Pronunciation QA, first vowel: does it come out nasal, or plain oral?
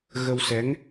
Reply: oral